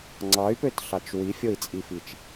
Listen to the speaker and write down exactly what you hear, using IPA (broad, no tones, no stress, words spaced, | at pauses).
ŋ͡ǀɑy̯pøtɬɑt͡ʃ wifʲoi̯t͡sʼifit͡ʃ